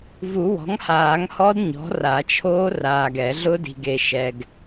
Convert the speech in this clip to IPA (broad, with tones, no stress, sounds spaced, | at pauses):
v u˨˩˦ w ɔ̤˩˥ ŋ h aː˨˩˦ ŋ h ɔ˦˥ d ɲ ɔ̤˩˥ r a˨˩˦ t͡ʃʰ oː˦˥ r aː˨ ɡ ɛ˨˩˦ ɮ ʊ˦˥ d i̤˨ ɡ e˨ ʃ ɛ˨ ɡ